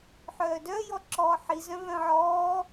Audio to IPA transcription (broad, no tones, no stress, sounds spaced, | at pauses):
ħ œː d œ j ɔ ǁ ɔː ħ i z œ̃ β œ̃ ʕ ɔː